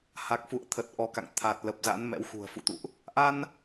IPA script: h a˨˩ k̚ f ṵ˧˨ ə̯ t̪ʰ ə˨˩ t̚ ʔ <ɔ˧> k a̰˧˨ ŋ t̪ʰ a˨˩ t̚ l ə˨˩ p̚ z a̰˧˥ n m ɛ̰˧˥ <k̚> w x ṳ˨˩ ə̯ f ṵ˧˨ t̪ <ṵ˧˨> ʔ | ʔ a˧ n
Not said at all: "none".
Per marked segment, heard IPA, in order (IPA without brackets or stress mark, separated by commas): ɔ˨˦, none, ṵ˧˨